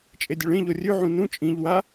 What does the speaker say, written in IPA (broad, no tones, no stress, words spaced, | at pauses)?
t͡ʃʼedʲɵɭẽʎo rʲʉʕũ nũ t͡ʃʼĩʎ wa